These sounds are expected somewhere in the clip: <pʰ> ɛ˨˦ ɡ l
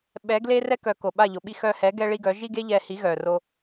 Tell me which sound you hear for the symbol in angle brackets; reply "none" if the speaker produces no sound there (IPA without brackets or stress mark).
ɓ